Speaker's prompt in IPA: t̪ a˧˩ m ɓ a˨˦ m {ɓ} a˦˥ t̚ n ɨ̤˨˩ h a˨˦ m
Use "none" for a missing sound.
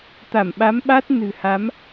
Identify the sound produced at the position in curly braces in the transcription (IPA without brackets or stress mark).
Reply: ɓ